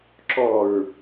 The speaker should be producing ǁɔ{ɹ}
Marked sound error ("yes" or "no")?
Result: no